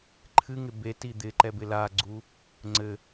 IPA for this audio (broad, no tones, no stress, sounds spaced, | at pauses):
ǃʰ ɨ ŋ ɪ b e t i d̪ ɪ ǃ ɛ b ɪ l a ɡ͡ǀ u | ŋ͡ǀ ɘ